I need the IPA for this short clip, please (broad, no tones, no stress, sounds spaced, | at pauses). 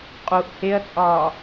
qʼ u ʔ h e ɐ̯ t͡sʼ ɒː